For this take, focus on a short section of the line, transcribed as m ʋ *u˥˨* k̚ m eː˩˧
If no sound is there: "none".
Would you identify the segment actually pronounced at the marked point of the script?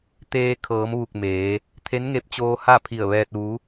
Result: u˧˩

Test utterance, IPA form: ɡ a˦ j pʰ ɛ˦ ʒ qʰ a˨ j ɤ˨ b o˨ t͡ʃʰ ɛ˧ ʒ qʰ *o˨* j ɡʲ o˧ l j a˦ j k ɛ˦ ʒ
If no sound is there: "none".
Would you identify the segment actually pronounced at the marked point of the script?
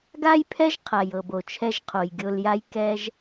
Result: o˨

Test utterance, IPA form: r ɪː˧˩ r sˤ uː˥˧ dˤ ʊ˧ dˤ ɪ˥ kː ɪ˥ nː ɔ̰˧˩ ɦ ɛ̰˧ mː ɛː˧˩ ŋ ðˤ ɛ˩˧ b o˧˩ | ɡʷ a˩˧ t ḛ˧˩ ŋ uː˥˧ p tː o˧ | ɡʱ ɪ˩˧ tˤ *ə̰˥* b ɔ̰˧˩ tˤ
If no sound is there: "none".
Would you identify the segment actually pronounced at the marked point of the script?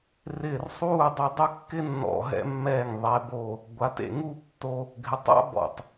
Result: a̰˥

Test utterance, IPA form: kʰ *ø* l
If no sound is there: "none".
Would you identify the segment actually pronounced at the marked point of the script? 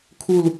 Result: u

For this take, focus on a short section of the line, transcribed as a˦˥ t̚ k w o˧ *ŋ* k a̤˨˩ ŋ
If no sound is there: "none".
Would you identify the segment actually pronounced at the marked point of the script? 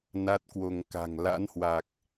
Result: ŋ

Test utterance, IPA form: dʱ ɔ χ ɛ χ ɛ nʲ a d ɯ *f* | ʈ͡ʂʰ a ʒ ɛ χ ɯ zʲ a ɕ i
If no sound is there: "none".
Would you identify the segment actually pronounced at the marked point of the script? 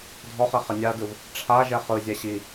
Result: v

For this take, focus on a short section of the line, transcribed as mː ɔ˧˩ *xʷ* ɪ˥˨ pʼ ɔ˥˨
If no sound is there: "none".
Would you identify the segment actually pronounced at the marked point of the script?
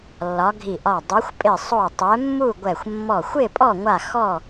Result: xʷ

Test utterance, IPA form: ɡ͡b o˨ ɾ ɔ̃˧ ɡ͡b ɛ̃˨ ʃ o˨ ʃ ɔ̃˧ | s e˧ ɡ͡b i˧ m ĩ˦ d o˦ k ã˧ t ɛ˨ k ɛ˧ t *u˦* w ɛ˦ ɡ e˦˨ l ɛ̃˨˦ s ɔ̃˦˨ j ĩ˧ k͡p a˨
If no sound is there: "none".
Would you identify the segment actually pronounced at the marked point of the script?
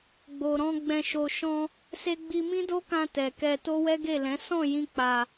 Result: o˦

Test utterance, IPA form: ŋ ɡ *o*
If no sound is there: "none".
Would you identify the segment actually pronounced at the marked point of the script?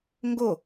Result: o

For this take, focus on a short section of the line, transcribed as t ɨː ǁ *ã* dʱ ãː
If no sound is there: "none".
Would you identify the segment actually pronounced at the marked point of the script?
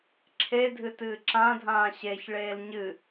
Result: ã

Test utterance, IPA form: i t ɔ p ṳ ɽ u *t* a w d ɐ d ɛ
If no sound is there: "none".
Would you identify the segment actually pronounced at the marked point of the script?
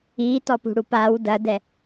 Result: p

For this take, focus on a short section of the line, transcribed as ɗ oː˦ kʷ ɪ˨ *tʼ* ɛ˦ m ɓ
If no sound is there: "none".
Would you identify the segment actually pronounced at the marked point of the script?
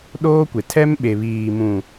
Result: tʰ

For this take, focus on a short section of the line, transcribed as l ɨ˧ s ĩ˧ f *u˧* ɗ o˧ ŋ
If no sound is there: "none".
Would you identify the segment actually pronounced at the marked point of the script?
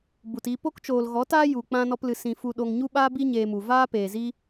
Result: u˧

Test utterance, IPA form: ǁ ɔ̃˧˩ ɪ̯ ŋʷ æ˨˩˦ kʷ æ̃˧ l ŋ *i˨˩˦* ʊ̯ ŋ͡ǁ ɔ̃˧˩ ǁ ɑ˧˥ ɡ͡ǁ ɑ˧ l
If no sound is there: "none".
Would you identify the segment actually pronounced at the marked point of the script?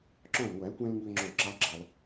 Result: i˧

